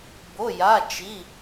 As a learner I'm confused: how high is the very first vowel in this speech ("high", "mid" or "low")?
mid